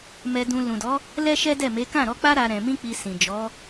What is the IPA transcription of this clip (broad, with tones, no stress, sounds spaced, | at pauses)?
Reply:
m ɛ˧ d ũ˧ l ũ˨ d ɔ˨˦ | l ɛ˦ ʃ ɛ˦ d ɛ˦˨ m e˨˦ k ã˦˨ ɾ ɔ˧ k͡p a˦ ɾ a˦ ɾ ɛ̃˧ m ĩ˦ k͡p i˧ s ĩ˨ d͡ʒ ɔ˨˦